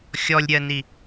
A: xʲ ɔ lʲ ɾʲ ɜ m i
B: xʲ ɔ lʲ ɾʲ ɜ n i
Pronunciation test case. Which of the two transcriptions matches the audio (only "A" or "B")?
B